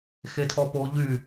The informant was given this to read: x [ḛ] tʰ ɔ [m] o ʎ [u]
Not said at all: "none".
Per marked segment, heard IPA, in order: e, p, y

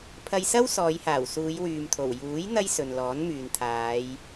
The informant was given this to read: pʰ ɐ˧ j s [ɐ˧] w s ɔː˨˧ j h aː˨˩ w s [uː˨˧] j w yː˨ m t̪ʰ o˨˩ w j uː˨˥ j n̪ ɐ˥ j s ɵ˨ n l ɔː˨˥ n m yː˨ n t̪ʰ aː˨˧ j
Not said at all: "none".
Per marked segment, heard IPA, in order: ɐ˥, uː˨˧

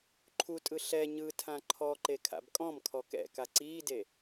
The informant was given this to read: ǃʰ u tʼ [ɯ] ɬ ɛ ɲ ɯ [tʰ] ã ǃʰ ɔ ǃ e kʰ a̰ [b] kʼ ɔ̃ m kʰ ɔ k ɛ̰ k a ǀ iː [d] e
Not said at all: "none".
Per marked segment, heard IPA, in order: ɯ, tʰ, b, d

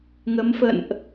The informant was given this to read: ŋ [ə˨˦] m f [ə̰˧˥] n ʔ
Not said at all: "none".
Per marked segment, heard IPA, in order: ə˨˦, ə̰˧˨

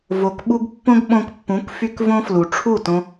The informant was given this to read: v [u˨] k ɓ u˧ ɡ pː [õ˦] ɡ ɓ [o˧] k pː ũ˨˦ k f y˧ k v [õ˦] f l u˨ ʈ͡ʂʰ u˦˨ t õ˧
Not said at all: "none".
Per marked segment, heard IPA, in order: o˨, õ˦, õ˧, õ˦

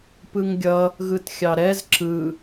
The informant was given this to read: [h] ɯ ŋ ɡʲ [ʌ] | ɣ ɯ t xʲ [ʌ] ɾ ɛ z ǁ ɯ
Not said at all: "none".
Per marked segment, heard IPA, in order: p, ʌ, ɑ

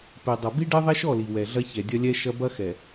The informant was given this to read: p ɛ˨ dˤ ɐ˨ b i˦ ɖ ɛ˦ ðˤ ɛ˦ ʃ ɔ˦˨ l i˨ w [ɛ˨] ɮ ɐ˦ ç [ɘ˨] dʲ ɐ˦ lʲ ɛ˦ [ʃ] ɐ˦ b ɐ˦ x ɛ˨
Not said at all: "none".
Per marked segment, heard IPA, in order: ɛ˨, ɛ˨, ʃ

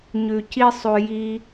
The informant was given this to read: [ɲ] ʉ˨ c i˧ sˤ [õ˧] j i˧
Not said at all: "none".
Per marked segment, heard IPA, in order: ɲ, o˧

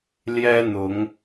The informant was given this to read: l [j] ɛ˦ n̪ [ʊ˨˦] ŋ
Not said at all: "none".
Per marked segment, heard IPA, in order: j, ʊ˨˦

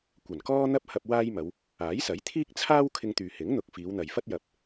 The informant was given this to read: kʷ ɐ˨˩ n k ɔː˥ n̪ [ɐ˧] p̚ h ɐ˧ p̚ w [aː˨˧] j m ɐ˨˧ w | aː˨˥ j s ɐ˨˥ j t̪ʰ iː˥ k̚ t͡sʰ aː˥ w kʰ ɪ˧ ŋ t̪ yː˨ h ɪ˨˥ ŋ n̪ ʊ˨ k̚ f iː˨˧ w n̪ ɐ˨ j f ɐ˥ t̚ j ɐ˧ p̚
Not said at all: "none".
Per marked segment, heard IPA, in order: ɐ˥, aː˥

